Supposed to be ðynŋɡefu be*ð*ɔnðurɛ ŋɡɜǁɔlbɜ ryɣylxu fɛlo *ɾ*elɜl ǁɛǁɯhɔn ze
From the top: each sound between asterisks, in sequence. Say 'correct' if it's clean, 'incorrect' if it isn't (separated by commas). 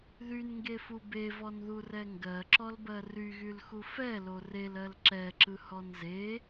incorrect, incorrect